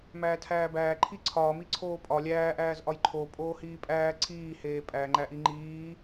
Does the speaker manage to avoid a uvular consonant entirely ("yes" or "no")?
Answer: yes